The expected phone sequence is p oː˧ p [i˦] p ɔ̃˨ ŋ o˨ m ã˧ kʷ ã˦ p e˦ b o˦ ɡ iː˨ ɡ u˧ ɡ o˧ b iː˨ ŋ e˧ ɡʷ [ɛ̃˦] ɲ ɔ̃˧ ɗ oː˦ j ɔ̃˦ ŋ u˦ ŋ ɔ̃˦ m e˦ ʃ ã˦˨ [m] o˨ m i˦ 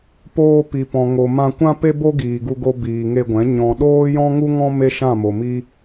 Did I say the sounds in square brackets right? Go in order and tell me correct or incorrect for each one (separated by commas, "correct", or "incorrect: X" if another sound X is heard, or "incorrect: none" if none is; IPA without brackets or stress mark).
incorrect: i˨, incorrect: ɛ̃˨˦, correct